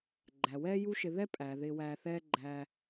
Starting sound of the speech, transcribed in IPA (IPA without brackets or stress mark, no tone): ɡ͡ǃ